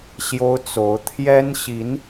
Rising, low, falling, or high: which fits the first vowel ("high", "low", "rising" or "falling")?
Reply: high